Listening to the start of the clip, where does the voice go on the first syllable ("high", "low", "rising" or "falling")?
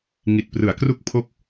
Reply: low